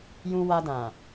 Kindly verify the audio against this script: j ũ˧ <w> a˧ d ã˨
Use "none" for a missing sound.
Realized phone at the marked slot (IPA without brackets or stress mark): w